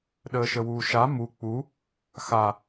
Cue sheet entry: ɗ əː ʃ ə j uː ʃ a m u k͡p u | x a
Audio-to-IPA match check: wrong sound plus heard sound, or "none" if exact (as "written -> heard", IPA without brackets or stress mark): j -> w